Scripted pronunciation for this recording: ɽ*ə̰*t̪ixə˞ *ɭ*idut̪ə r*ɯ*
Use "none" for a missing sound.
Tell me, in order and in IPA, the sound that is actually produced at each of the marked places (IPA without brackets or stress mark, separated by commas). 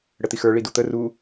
ə, ɭ, u